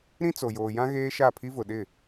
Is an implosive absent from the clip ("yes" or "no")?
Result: no